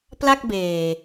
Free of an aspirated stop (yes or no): yes